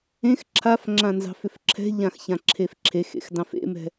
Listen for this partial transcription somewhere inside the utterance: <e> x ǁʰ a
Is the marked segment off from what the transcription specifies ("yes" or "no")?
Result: yes